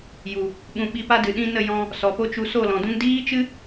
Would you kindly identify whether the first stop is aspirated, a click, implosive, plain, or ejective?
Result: implosive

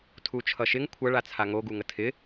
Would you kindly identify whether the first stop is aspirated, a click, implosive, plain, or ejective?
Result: aspirated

